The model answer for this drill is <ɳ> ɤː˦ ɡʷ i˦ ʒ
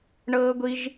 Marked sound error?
no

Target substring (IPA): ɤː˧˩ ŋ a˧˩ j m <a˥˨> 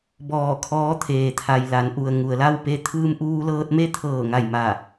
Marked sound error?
yes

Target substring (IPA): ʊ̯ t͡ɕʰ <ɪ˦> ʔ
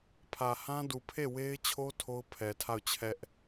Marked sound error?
yes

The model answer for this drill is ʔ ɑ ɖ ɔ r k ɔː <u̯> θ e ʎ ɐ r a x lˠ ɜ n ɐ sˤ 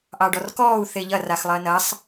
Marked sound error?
no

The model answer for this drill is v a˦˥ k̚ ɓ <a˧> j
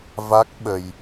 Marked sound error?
yes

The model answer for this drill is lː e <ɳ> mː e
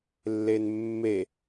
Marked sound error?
yes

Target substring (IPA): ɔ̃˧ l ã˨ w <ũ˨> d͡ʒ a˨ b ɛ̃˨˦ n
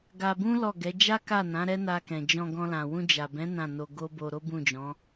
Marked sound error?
yes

